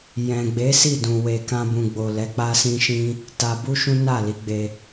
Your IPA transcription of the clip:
j ɛ̃˨ ɡ͡b e˨˦ s i˦˨ d ũ˨ w e˨ k ã˧ b ũ˨ ɡ͡b o˨ l ɛ˨˦ k͡p a˦ s ĩ˦ ʃ ĩ˦ | t a˧ b u˦ ʃ ũ˦ n a˦˨ l i˨˦ ɡ͡b e˧

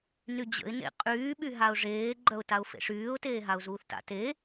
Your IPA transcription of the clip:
n y d͡ʑ ə̰ ɪ̯ n ḛ qʼ yː ɓ y ɦ a ʊ̯ ʐ eː ɡ͡ǃ œ ʊ̯ t a ʊ̯ f ḛ ʂ yː ʊ̯ t eː ɦ a ʊ̯ z uː θ t a̰ t e

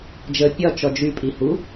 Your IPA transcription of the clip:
d͡ʒ ə pʲ ɒ t͡ʃ ɔ d͡ʒ y pʼ i h u

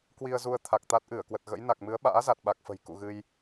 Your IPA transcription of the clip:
k w i˧ ə̯ z u˧ ə̯ t̪ʰ a˨˩ k̚ t̪ a˦˥ t̚ ʔ ɨ˧˩ ə̯ k w ə˨˩ t̚ ɣ ə̰˧˥ j n a˨˩ k̚ m ɨ˨˦ ə̯ ɓ a̰ː˧˥ z a˨˩ t̚ ɓ a˨˩ k̚ f ə̤˨˩ j k ṵ˧˨ ɣ ɨ˧ j

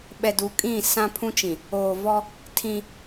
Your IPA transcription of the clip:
ɓ ɛ˨ d u˨˦ kʼ ĩ˦˨ s ã˦ pʰ ũ˦ t͡ʃ ĩ˨ | oː˨ v ɔ˦ | tʰ ĩ˦

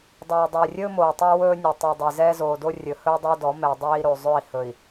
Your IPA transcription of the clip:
dˤ ɛː˨ dˤ ɵː˨ rʲ ɵː˦ m oː˨ tˤ a˦ w ɵː˦ nʲ ɵ˨ tˤ i˨ dˤ i˨ z ɛː˦ z oː˨ d o˦ rʲ ɵ˨ h ɵː˦ dˤ ə˞˦ d ɔ˨˦ m ɛ˨ dˤ eː˦ i̯ ɾ o˨ zˤ ɵ˦˨ i̯ h ɵ˨ i̯

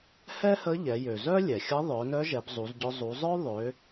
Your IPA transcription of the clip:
h ɛ˥ h ə˧˥ ʎ ɛ˩˧ j ø˩ z œ˥ lʲ ɛ˩ xʲ ə˧˥ ðˤ œ˩˧ n œ˧˥ ʒ ɛ˩˧ b zˤ u˩˧ z ɟ œ˧ zˤ u˩˧ zˤ œ˥ ðˤ ø˩˧

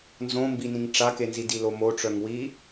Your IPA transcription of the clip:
n z õ m b i n ĩ ŋ ʈ͡ʂ a k e n z i d i l o m o ʈ͡ʂ œ ŋ w i

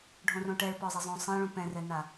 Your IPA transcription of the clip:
ɖʱ õ r õ ʈ ɛ ɭ p ɔ zˤ ɛ zˤ õ sˤ ɛ̃ ɭ ũ p ɛ̃ r ɛ n a

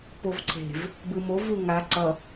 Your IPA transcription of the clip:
p o v ǀʰ e̤ v | b ɯ m o v u ŋ a ǀ ʌ

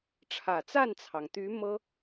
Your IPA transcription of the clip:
ʈ͡ʂʰ ä˨˩ t͡s a˥˩ n t͡sʰ ɑ˩ ŋ t̪ y˧˥ m ɤ˥

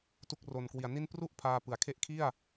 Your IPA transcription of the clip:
t u˦˥ k̚ r o˨˩ n k w i˨˩ a̯ n i˥˩ n p r u˥˩ ʔ pʰ aː˧ p ɯ˩˦ a̯ kʰ e˦˥ ʔ kʰ i˥˩ a̯

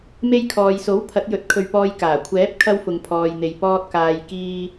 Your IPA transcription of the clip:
m e˧ j kʰ ɔː˨ j s o˨˥ w pʰ ɐ˨˥ t̚ j ɵ˨˥ t̚ kʰ ɵ˨ ɥ p ɔː˨ j k aː˨˩ kʷʰ ɛː˨˥ p̚ kʰ ɐ˧ w f ʊ˨ ŋ pʰ ɔː˨ j n̪ e˨ j p ɔː˧ t̚ k aː˨ j k iː˧

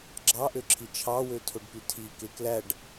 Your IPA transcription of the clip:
ɡ͡ǁ ɑ ʔ ø ǁʰ i t͡ʃʰ ɑ w ø tʰ o ɖ p y tʰ i k e k l æ ɖ

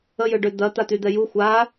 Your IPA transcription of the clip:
ə j ø ɖ ø d̪ ɐ t̪ a t̪ y d̪ ɛ j u xʷ a

